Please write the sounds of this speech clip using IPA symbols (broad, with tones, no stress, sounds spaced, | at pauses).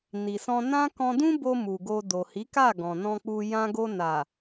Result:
n i˨ s ɔ̃˧ n ã˦ k ɔ̃˧ d ũ˦ b o˧ m u˨ ɡ o˧ d o˨ h i˨˦ k a˦˨ ɡ ɔ̃˨ n ɔ̃˧ k͡p u˧ j ã˧ ɡ o˧ n a˨